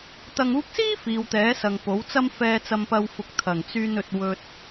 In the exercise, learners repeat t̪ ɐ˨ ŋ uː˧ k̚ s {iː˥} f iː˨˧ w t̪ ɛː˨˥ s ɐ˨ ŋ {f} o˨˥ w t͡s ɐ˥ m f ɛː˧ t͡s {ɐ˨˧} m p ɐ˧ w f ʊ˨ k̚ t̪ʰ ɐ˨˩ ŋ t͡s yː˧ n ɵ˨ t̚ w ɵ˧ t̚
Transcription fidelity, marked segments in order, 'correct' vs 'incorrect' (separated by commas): correct, incorrect, incorrect